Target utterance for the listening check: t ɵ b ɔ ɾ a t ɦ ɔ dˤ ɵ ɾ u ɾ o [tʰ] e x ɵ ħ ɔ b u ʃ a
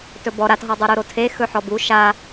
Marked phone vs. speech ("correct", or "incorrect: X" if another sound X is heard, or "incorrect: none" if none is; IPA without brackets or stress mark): correct